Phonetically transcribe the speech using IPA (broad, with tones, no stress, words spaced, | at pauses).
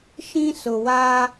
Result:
ʃĩ˦sʊ˨wa˦